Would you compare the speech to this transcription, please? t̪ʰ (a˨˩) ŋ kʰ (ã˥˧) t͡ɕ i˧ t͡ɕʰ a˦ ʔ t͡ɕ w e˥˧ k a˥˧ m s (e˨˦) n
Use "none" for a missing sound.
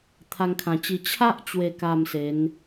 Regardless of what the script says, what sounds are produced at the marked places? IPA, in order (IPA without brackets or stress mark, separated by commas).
a˧, ã˨˩, e˨˦